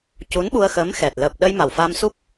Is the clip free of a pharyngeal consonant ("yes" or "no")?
yes